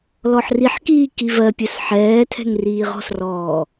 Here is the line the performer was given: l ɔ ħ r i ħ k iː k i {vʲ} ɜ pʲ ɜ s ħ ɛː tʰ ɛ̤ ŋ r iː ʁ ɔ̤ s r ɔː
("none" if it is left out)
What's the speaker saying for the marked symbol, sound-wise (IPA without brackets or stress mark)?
v